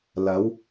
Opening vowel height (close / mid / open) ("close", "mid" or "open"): open